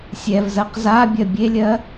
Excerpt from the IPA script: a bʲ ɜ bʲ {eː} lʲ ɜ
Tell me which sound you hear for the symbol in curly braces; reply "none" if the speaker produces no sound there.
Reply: e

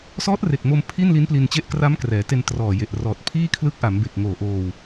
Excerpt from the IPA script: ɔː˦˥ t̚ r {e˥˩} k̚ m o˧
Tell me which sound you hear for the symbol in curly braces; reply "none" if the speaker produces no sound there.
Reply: e˨˩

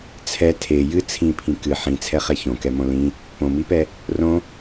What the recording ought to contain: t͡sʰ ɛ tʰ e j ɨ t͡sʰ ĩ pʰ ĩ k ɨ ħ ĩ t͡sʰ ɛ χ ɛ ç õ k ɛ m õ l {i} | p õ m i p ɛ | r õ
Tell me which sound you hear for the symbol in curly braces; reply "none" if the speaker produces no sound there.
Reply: ĩ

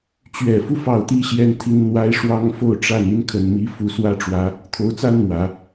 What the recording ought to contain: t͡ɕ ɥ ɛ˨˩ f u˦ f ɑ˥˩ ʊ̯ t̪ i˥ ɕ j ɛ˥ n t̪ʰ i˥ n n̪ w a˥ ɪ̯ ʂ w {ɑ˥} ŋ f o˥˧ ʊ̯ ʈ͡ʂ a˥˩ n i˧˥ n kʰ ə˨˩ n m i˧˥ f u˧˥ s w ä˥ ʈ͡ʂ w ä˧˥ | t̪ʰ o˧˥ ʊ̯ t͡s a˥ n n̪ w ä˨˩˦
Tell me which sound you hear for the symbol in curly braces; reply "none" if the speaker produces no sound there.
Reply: ɑ˥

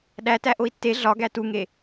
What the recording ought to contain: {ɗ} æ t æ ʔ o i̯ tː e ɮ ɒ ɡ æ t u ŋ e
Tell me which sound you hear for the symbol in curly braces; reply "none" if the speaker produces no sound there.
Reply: ɗ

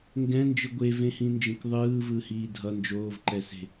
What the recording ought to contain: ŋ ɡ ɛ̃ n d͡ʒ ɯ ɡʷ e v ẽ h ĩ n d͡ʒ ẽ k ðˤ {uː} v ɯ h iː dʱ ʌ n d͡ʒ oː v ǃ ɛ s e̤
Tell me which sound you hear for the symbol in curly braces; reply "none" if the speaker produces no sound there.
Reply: ɯː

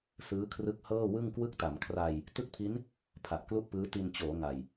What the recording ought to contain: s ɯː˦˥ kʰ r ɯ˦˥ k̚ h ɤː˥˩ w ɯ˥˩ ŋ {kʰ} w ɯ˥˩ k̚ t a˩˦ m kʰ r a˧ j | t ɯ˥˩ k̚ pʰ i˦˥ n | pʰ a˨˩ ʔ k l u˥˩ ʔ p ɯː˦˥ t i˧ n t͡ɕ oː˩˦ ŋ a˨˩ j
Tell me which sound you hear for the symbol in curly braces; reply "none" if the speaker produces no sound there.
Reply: k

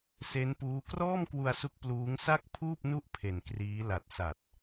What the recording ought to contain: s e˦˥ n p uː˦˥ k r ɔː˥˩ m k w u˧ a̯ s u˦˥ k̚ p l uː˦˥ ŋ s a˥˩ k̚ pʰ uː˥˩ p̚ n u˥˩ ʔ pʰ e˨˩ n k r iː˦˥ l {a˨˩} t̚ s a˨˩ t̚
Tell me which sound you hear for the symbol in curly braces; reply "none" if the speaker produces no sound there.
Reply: a˨˩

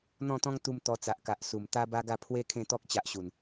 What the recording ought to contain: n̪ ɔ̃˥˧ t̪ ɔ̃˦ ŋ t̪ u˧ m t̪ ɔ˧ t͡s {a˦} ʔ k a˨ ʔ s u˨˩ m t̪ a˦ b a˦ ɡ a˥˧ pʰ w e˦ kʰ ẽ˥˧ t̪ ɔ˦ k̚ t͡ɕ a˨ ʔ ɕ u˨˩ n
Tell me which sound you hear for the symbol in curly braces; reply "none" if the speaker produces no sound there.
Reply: a˨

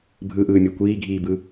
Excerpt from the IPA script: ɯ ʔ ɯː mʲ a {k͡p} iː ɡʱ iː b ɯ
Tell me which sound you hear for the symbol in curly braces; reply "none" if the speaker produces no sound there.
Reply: kʷ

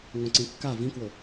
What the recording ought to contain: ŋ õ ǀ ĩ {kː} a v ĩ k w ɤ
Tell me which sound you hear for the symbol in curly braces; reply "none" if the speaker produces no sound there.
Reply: kː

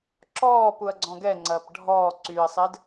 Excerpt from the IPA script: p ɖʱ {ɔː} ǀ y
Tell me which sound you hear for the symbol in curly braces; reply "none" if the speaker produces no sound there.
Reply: ɔː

